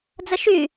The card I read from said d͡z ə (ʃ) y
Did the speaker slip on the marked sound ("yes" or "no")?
no